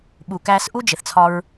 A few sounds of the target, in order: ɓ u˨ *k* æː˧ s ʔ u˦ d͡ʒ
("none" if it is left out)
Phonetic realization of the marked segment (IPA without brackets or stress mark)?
k